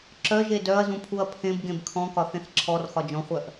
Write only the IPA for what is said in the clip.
ǁ œ ʒ e d œ ɐ̯ z ũ pʰ u ɐ̯ pʰ ẽ b ɡ ẽ b kʰ ɔ̃ k ɒ θ ẽ θ ǁʰ ɔ r x ɒ d͡ʒ ɔ̃ χʷ œ ʔ

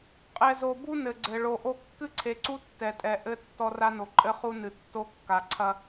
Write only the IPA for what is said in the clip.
qʼ ɛ˨ z o˨ b u˦ n ɘ˨ ɡ͡ǀ ɘ˨ ɭ o˨ ʔ o˦ kː ɨ˦ ǀʰ e˨ ǀ u˦ tː ɛ˨ tʼ ɛ˨ ʔ ɘ˦ tː ɔ˦ r a˦ n o˨ ǃʼ ɘ˦ χ u˦ n ɨ˨ tː o˦ kː a˨ ǀʰ ɐ˦

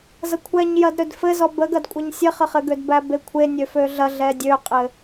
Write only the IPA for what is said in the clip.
z ɐ kʷʰ ɛ ɲ j ɐ d ɾ ø d f ɘ z ɔ b ə ɡ ɐ d kʷʼ ɐ ɲ sʲ ɘ χ ə χ ɘ ɡ ø d b æ b e kʷʰ e nʲ ø f ø ɮ ɐ ɮ ɛ dʲ ø qʼ ɘ

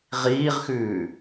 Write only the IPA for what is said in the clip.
ʁ iː ʁ x ʉː

